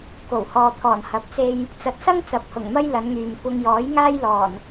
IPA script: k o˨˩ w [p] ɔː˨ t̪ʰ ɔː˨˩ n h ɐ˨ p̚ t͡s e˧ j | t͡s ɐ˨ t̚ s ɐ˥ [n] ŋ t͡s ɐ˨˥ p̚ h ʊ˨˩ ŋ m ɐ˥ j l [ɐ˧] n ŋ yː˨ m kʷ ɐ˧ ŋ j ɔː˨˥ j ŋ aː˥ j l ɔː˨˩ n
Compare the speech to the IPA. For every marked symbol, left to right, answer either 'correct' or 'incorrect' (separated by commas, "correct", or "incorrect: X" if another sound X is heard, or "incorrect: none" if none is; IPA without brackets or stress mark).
incorrect: h, incorrect: none, incorrect: ɐ˨˧